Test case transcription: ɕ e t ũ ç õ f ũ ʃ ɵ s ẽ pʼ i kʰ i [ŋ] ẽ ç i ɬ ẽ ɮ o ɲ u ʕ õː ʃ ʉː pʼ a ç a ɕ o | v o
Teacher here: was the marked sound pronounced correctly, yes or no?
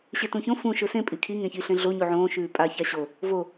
yes